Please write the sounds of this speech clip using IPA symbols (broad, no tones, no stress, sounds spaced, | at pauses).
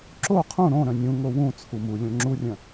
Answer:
ǁ o qʰ ũ ɾ õ ɾ œ̃ nʲ ũ ŋ o w ũ t͡sʰ u m u lʲ õ ŋ͡ǁ u rʲ œ̃